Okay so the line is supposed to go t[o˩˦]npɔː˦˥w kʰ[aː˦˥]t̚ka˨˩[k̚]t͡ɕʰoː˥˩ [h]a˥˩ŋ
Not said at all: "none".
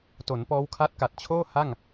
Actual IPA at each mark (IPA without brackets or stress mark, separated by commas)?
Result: o˩˦, a˦˥, t̚, h